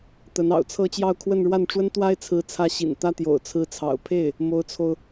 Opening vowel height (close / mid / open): mid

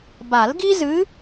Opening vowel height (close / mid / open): open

